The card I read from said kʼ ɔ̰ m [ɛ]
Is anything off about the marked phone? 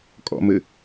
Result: yes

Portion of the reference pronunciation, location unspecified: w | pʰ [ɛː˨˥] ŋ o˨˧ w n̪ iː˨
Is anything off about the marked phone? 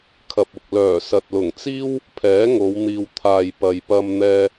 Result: no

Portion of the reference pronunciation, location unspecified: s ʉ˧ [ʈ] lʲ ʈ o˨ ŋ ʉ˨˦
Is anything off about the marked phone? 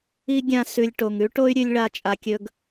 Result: yes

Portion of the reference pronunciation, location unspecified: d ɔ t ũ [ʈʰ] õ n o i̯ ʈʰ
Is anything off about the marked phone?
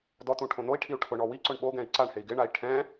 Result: no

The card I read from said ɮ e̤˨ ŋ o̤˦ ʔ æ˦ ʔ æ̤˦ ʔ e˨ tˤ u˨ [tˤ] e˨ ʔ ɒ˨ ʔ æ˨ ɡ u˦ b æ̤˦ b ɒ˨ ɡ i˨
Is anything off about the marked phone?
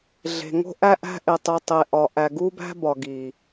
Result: no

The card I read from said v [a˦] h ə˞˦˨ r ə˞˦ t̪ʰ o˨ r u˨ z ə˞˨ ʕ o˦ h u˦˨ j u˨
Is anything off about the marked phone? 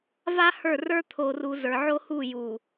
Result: no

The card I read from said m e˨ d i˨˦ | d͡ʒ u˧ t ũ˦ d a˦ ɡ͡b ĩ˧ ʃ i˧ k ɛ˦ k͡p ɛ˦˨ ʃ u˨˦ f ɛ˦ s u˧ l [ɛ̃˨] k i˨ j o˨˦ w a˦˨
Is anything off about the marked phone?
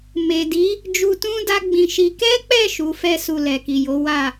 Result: yes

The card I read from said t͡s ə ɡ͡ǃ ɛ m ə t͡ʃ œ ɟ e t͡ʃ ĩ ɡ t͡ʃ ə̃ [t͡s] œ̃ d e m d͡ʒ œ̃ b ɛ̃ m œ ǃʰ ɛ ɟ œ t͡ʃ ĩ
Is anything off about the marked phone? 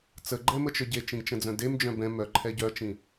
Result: yes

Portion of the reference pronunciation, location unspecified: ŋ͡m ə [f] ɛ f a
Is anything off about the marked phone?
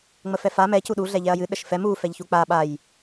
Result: no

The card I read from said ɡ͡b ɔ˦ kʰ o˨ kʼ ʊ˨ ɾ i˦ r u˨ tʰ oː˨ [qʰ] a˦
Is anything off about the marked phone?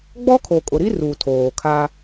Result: yes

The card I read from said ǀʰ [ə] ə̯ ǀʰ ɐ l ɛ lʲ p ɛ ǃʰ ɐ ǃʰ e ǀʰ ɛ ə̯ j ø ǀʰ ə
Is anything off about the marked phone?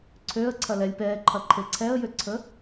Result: yes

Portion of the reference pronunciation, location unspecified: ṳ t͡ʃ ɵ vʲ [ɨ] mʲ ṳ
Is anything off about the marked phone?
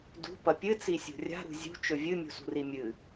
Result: no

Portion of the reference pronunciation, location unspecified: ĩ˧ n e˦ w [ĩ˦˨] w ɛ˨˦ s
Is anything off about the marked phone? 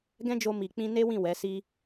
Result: no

